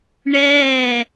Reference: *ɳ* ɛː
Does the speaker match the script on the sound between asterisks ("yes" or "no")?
yes